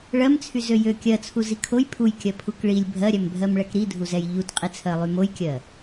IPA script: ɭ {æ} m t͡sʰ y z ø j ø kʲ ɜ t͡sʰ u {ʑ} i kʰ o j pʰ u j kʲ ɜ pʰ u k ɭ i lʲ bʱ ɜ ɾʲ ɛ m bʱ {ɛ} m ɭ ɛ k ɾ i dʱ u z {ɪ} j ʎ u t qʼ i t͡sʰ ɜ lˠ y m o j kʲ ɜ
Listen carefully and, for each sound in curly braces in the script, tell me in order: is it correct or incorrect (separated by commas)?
incorrect, incorrect, incorrect, incorrect